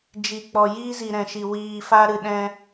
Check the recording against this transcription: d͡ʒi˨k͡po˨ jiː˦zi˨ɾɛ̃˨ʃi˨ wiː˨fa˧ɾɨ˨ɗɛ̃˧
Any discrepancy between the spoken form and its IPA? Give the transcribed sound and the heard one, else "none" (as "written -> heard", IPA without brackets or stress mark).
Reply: o˨ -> ɔ˨